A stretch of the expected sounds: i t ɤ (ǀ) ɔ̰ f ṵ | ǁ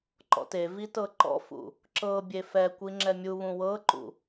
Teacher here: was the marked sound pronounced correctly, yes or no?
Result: no